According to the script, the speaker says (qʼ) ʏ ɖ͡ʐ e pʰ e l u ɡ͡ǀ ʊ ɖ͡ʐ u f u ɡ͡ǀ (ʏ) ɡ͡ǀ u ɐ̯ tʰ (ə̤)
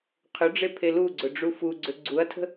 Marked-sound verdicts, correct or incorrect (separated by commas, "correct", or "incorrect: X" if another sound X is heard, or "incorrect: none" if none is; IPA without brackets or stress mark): incorrect: qʰ, correct, correct